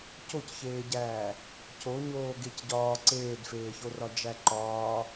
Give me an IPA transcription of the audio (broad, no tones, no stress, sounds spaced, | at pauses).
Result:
c o c ç eː ɟ æː | c o ɲ oː ɡ e c ɟ ɒː ǀ eː d f eː ç o r ɒ d͡ʒ æ ǃ ɒː